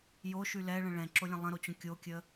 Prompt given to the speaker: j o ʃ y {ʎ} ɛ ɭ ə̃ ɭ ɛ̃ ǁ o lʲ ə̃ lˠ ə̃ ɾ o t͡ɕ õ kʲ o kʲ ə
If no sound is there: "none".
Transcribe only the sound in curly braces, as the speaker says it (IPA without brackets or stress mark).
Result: l